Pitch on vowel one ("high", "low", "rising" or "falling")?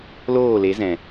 falling